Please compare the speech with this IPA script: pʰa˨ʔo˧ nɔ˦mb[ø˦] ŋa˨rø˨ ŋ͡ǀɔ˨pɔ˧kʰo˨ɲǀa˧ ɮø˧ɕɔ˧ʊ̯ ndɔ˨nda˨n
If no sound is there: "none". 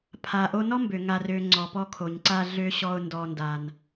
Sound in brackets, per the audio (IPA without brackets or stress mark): ø˨